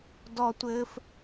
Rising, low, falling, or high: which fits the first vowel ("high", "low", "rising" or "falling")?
high